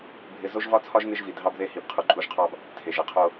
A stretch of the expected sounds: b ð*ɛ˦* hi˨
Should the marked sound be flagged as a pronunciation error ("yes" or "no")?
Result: yes